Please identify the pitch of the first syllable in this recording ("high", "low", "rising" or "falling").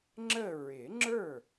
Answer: falling